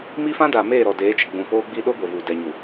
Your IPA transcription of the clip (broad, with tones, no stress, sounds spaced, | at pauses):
m i˦ f ã˦ d aː˨ m eː˦˨ ɾ ɔ˨ d eː˨˦ t͡ʃ ɪ˨ ɡ͡b ũ˨ p oː˦ ɡ͡b i˦ ɗ o˦ ɡʷ e˨ v uː˨ d ɛ˨ ɲ u˨